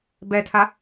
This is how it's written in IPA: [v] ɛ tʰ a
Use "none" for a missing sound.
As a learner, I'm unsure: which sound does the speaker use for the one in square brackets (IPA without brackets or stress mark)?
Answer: b